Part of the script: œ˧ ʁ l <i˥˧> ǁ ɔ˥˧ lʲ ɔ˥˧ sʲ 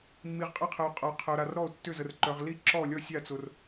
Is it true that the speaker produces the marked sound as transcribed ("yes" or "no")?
yes